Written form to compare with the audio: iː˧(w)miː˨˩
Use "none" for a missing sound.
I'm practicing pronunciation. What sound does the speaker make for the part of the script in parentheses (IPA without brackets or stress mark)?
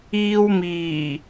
w